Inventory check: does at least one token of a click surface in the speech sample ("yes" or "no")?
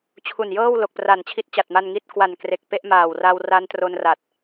no